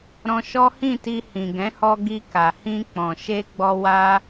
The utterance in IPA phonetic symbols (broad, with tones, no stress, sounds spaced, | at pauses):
ɾ ɔ̃˧ ʃ ɔ˦ h ĩ˦˨ t i˧ h ĩ˨ ɡ ɛ̃˨˦ h ɔ˧ ɡ i˧ k a˨ h ĩ˧ k͡p ɔ̃˨ ʃ e˧ ɡ͡b ɔ˧ w a˧